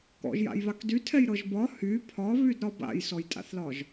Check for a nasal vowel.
absent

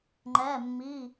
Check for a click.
present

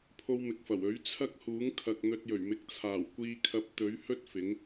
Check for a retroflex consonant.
absent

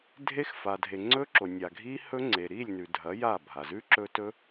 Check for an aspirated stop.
absent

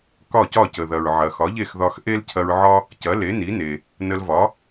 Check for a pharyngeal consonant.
present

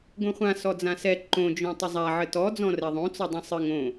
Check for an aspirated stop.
absent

